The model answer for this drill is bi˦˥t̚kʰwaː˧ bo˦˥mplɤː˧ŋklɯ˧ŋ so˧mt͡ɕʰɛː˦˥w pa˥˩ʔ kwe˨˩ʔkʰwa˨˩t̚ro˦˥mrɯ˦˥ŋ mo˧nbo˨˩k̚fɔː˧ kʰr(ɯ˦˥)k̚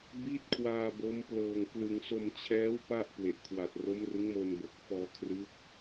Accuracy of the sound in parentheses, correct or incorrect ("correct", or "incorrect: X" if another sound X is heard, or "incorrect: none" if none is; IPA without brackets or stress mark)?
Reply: correct